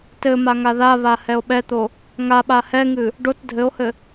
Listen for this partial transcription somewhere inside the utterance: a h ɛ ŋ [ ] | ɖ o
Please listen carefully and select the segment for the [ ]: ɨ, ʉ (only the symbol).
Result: ɨ